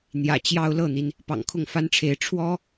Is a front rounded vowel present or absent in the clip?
absent